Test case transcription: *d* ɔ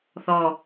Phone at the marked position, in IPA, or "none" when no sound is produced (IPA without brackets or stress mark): θ